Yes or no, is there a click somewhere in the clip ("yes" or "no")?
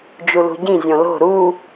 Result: no